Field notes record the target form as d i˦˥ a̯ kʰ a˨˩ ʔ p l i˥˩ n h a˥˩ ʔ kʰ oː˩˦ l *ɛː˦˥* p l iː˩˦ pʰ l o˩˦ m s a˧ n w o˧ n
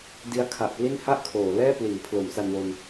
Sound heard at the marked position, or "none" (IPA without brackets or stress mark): ɛː˥˩